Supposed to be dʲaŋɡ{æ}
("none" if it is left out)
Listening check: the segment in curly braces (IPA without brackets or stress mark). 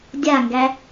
æ